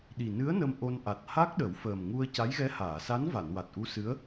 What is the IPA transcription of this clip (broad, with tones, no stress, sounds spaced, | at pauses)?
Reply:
ɗ i˨˩ n ɨ˧˥ ə̯ n ə˧ m ʔ o˧ n ʔ a˨˩ t̚ h a˦˥ k̚ ɗ ə˨˩˦ w f əː˨˩ m ŋ u˧ ə̯ c a˧˥ j ɣ ɛ˧˥ h aː˨˩˨ s a˧˥ n v a˨˩˨ n w a˨˩ t̚ ʔ u˧˥ s ɨ˧˥ ə̯